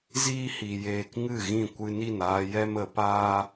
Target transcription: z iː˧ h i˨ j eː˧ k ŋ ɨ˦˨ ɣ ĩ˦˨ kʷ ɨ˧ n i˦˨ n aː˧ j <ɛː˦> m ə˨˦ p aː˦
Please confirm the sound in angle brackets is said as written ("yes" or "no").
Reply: no